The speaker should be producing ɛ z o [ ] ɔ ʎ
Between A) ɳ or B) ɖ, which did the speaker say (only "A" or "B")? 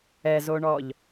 A